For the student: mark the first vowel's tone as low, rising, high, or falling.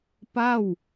falling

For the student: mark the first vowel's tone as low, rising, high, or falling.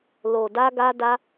low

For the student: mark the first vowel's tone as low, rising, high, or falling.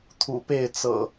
low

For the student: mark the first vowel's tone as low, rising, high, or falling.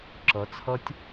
rising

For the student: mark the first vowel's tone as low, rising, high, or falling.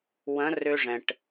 rising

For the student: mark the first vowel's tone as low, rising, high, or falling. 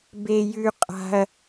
high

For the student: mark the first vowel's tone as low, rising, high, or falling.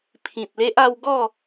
low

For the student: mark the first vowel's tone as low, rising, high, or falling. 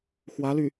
rising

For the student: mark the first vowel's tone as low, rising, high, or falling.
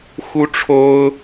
high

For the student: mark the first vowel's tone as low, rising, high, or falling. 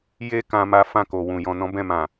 high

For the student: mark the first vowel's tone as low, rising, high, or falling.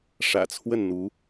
low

